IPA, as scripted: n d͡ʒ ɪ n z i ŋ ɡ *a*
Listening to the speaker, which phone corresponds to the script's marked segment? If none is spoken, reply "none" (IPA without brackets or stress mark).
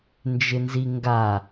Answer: a